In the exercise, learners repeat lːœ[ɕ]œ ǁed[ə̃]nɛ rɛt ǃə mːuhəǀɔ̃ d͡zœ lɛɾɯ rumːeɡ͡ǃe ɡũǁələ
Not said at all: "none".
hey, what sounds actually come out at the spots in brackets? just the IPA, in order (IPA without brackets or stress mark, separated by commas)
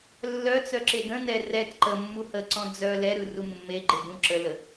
t͡s, ə̃